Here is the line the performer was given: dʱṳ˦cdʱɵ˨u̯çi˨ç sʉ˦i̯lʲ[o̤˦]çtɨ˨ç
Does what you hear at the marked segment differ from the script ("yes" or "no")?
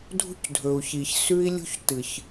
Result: yes